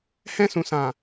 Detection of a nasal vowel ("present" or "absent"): present